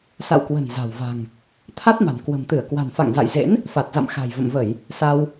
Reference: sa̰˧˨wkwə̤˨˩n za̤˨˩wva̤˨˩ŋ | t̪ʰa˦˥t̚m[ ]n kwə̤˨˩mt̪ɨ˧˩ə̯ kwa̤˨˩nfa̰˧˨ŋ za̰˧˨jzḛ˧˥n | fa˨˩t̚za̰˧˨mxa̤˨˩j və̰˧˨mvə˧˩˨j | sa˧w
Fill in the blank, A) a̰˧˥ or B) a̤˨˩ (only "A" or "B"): B